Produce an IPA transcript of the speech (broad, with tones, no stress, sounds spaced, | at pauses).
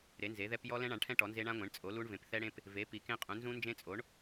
ɾ e˩˥ n z e˩˥ ð ɛ˦˥ p j ɔ˦˥ l ɛ̃˦˥ ɳ ã˩˥ ɳ ʈʰ ɛ̃˦˥ ʈ ɔ˩˥ n z e˦˥ ɳ ã˦˥ ŋʷ ẽ˩˥ ɳ t͡sʼ o˩˥ l u˦˥ ɳ v ẽ˩˥ p θ ɛ˦˥ ɽ ẽ˦˥ p | v e˩˥ p i˩˥ k ẽ˦˥ qʼ ũ˩˥ n z ũ˦˥ n d͡ʒ ẽ˦˥ t͡sʼ o˩˥ ɳ